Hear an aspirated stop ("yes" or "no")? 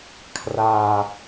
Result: yes